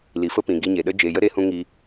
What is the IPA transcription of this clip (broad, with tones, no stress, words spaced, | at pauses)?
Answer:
li˨fə˦ pĩ˨ ɡi˧ɲe˨ɗə˦ d͡ʒe˨jə˦ ɾeː˦hũ˦ŋi˧